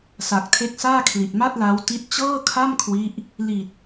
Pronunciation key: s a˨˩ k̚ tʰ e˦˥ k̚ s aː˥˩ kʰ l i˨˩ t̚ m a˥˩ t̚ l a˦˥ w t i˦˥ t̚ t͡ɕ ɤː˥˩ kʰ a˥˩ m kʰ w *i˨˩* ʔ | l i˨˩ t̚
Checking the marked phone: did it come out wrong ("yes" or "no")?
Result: yes